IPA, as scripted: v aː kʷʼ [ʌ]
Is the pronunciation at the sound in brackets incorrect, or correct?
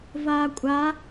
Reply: incorrect